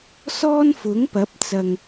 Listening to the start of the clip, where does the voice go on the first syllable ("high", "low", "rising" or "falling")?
high